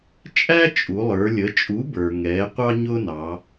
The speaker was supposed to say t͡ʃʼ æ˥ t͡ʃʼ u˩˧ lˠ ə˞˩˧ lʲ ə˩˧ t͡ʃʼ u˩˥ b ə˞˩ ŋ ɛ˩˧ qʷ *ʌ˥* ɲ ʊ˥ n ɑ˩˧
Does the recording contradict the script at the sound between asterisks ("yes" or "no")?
yes